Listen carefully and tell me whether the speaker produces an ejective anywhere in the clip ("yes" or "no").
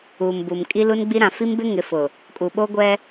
yes